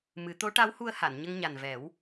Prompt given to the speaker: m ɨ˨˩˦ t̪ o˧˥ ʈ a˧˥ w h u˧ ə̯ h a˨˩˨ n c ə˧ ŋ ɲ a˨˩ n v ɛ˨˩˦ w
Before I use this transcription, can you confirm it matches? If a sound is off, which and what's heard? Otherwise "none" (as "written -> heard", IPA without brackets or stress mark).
c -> ɲ